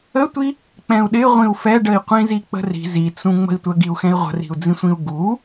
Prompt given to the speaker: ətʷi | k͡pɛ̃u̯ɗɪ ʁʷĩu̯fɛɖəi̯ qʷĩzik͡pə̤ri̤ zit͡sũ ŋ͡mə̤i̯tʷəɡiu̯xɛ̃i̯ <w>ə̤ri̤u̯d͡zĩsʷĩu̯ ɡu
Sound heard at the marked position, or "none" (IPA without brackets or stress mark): ʁʷ